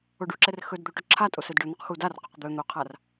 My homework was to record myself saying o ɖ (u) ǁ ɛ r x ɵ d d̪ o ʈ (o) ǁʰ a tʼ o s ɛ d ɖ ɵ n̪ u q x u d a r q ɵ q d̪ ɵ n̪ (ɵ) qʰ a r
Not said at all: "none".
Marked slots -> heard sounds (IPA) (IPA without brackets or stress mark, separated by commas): u, ɵ, o